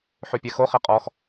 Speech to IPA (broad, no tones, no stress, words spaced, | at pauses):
ħʉpʲɛxo χeqʼɔx